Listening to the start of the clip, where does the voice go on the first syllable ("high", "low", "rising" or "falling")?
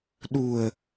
low